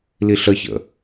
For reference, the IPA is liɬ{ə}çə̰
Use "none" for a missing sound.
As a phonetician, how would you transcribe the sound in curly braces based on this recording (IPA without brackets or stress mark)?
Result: ə